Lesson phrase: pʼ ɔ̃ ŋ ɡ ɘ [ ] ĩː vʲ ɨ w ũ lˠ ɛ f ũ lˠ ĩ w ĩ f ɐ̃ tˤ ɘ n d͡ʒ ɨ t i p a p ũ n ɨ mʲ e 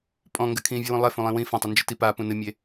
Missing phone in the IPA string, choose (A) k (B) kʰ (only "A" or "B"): B